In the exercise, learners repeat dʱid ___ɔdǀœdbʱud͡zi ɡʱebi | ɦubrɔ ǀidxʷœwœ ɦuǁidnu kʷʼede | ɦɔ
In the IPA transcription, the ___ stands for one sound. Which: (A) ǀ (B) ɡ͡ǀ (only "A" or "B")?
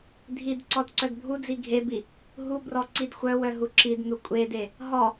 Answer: A